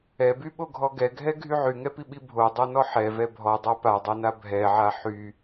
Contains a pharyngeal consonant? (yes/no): yes